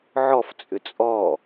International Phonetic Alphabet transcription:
ʕ ɔ f t͡sʼ ʏ t͡sʼ ɔ

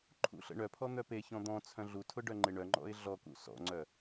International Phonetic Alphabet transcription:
ǃʰ ṵ ɬ ə̰ ɳ œ pʰ ɔ n̪ œ p e ç ɔ̃ d̪ ɔ̃ t͡sʰ œ̃ ɮ u tʰ ʊ ɖ œ ŋ͡ǃ ɪ ɳ œ ŋ͡ǃ ɔ̰ ɪ̯ ɮ ɔ k ṵ s ɔ̰ ŋ͡ǀ œ

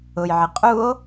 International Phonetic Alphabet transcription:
ʊ j ʕ ɪ qʼ u o̯

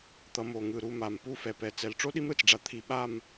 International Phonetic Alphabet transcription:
t̪ ʌ˧ m o˧˩ ŋ ɯ˧˩ ɾ u˧ m a˧˩ m p u˥˧ f ɛ˧ p ɛ˧˩ t͡s ɛ˧ l ʈ͡ʂ o˥ ɗ i˥ m ɾ ɯ˧˩ t͡s ɖ͡ʐ a˧ t̪ʰ i˧ ɓ a˥˧ m

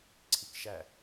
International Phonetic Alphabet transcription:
ǀʰ i k ʃ æ

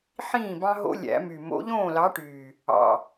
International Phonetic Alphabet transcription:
ħ ĩː˥˩ b ɑ̃˦ ɦ o̰˦ lʲ æ̰˨˩˦ m y˨˩ m o̰˨˥ ʎ õː˥˩ l ɑ˨˥ ʈ yː˨˩ | ɑ̰˨˩

